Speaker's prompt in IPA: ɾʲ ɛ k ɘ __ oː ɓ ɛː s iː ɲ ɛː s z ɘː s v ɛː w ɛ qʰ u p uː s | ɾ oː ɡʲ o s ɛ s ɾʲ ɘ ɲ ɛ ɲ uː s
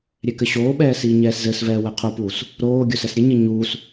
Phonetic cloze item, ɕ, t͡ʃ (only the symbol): ɕ